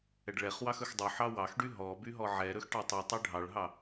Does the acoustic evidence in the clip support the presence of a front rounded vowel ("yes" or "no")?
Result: yes